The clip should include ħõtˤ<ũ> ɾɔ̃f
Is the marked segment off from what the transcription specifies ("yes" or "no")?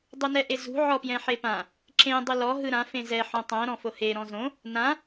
yes